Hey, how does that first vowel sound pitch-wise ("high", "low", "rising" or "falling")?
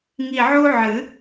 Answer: low